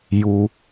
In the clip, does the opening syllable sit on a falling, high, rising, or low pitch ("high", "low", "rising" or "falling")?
low